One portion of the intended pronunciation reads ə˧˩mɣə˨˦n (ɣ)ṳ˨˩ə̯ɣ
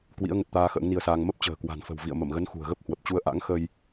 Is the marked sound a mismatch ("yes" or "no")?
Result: yes